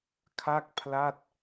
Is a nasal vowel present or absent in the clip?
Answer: absent